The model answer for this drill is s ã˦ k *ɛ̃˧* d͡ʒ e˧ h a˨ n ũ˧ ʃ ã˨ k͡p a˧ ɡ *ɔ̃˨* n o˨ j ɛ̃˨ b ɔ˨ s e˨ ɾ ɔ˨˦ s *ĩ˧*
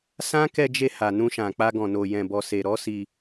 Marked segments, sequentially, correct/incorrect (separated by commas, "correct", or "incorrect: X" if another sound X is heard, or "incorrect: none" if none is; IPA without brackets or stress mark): incorrect: ɛ˧, correct, incorrect: i˧